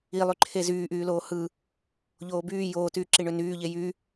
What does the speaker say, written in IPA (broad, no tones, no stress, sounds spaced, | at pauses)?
i lˠ y ǃʰ e z yː ʔ yː l oː h ɯ | ʎ oː b yː j oː t yː ǁ i ɳ ø n yː ʎ e j y